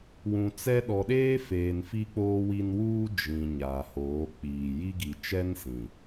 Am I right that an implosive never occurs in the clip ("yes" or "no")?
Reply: no